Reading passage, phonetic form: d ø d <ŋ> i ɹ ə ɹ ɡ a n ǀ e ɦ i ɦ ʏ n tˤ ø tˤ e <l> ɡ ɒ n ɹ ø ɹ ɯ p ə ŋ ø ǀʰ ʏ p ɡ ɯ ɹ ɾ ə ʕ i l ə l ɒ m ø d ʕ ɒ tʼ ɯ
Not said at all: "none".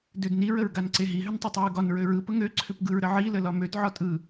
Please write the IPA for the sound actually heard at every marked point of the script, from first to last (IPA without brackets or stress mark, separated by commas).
n, ɹ